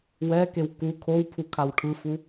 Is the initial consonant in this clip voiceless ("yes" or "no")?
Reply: no